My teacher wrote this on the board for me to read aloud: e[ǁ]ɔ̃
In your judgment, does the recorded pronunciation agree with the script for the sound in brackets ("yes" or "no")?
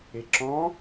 yes